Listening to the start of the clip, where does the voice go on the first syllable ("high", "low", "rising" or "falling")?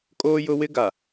high